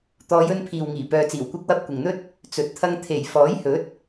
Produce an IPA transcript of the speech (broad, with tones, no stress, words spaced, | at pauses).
t̪ɔː˨˧jɵ˧npʰiː˨wŋiː˨˩ pœː˨t͡siː˨˩wkʷɐ˧k̚wɐ˧p̚ kʷɪ˨ŋn̪ɵ˥t̚ | t͡sɵ˨t̚t̪ʰɐ˧ŋ t̪ʰe˨˩j fɔː˨˥jhɵ˨˥t̚